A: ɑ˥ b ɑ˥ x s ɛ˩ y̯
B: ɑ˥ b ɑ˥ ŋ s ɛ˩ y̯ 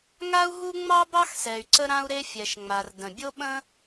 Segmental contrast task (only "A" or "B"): A